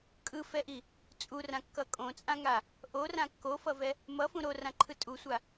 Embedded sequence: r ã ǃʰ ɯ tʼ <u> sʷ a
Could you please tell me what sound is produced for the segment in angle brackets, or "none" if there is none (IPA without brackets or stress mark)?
u